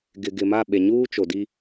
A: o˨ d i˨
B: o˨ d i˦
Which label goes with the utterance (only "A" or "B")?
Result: B